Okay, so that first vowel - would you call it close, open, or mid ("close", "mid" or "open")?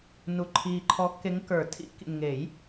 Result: close